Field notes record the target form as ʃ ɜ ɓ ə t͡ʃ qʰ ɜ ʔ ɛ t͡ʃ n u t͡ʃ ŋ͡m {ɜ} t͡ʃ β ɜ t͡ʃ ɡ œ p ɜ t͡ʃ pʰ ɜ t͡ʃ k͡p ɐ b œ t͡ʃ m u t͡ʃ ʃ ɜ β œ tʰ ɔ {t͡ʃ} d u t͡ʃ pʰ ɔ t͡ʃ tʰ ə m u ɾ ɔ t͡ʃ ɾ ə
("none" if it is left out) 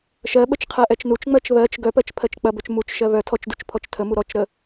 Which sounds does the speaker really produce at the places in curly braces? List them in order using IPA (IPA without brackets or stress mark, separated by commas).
ɜ, t͡ʃ